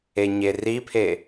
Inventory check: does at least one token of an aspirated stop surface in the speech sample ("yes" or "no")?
yes